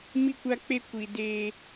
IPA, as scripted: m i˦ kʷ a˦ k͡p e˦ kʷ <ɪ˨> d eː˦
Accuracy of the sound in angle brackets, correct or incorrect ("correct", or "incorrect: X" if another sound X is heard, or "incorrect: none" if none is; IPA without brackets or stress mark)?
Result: incorrect: i˨